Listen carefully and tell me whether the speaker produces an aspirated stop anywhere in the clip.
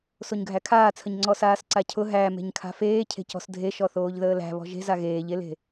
yes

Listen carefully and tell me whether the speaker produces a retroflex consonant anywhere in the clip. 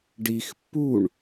yes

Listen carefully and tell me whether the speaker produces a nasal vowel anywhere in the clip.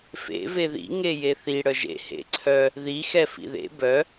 no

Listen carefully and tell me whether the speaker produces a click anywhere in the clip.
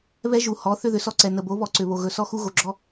yes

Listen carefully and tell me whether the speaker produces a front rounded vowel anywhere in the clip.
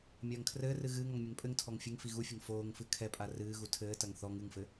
no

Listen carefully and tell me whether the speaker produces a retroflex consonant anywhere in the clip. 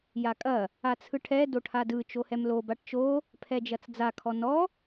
yes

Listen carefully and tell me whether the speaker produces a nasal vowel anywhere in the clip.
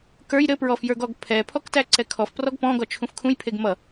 yes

